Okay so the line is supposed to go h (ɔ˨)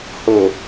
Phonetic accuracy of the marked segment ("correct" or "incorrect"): incorrect